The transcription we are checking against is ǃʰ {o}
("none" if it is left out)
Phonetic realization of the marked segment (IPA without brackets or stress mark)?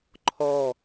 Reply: ɔ